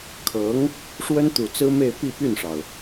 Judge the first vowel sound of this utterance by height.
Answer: mid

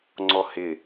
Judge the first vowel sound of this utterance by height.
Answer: mid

